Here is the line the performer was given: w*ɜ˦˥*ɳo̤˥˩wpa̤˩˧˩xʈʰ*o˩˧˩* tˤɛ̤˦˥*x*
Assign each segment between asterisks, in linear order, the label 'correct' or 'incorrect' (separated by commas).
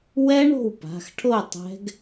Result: incorrect, incorrect, incorrect